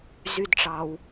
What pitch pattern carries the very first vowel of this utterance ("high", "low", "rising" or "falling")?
high